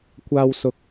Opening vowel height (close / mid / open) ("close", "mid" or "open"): open